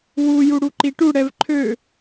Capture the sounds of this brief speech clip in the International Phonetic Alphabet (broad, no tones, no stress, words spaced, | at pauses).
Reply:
wu juɽuǃiʈu ɽɛvǃʰø